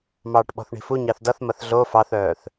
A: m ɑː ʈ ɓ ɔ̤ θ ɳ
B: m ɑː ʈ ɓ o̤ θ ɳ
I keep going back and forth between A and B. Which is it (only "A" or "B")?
A